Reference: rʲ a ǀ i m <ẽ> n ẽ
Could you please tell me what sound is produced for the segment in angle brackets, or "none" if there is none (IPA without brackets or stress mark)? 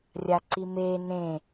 e